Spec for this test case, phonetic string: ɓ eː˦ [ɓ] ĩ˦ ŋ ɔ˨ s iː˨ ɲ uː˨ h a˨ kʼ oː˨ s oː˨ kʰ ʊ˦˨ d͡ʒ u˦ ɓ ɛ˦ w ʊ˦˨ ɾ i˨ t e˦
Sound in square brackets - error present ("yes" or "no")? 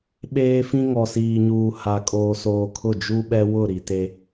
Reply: yes